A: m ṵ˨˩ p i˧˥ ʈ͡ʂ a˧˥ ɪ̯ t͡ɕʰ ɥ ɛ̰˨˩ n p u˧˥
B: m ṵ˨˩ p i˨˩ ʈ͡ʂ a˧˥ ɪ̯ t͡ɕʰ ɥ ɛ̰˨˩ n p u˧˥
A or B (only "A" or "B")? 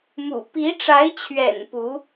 A